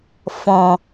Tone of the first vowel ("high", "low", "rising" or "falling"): low